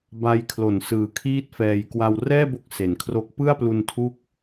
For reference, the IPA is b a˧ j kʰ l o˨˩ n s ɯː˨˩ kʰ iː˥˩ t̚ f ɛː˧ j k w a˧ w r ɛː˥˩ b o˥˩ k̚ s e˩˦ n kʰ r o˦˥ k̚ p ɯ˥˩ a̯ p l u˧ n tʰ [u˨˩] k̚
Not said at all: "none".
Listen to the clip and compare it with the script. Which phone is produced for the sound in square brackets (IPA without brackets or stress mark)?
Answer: u˦˥